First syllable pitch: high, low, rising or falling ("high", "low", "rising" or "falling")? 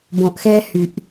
low